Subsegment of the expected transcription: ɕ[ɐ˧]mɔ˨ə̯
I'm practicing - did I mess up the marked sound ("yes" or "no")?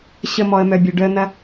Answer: yes